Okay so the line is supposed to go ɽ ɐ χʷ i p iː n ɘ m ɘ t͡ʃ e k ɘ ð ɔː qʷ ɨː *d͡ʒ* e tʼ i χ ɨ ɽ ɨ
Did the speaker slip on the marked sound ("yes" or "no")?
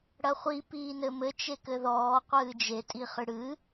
no